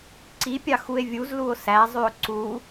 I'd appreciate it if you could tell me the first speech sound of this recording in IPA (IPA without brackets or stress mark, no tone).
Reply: ǀ